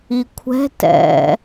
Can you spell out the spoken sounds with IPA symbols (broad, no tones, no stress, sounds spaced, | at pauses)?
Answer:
i kʷʰ ɛ̤ t ɛ̰